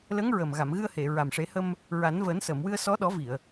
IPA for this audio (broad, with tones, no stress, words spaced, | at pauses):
lə˧˥ŋɹə˨˩m ɣa˨˩˨mɣɨ˧ə̯he˨˩˨ ɹa˨˩mʂe˨˩˦hə˧m | ɹa˨˩˦nvəː˨˩˦n sə˨˩˨mwɨ˧ə̯sɔ˧˥ ɗɔ˨˩˦vi˨˩˨ə̯